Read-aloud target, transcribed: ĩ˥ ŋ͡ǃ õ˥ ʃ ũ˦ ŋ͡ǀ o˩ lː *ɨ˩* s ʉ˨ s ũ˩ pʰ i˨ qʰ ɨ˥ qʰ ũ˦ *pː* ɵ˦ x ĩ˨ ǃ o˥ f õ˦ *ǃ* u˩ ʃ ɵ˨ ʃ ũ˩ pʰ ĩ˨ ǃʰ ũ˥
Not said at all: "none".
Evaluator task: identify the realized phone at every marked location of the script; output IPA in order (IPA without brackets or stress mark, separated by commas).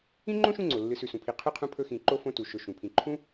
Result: ɨ˨, pʰ, t